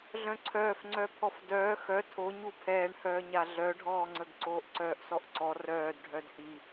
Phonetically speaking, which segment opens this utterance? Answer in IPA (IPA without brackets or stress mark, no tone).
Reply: ɮ